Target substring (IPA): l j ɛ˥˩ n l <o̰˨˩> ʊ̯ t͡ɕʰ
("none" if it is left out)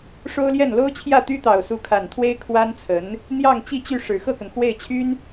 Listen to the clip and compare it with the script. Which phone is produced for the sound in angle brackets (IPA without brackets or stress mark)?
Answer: o˥